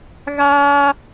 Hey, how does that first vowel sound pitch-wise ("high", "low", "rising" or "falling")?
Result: high